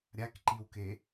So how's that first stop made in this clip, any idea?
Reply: plain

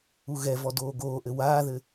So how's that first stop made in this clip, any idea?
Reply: plain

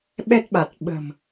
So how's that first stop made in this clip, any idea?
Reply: implosive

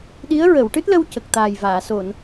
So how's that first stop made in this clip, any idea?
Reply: implosive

